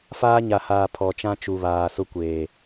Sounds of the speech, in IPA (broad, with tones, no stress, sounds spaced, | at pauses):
f aː˦ ɲ a˨ h aː˨ pʰ ɔ˨ t͡ʃ ã˦ t͡ʃ u˨ β aː˨ s ʊ˦ kʷ eː˨